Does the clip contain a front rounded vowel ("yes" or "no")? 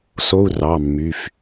yes